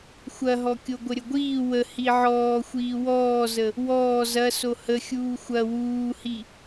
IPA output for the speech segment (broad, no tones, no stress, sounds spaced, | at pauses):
xʷ ɐ ɦ ɔ kʲ o ɡʷ ə ɾʲ ə ɡʷ iː w ə h i ʕ ɔː xʷ iː w ɔː z ə | w ɔː z ɐ s o h ə xʲ uː xʷ ɐ w uː h i